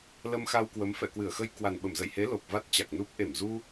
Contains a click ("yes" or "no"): no